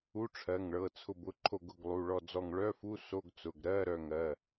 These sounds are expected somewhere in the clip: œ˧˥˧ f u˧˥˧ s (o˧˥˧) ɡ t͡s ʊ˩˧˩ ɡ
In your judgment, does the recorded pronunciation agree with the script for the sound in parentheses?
yes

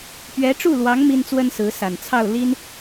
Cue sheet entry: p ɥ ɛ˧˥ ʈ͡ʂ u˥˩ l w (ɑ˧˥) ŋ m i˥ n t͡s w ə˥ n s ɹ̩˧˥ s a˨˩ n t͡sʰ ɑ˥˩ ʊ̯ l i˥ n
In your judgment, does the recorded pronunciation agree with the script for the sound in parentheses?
yes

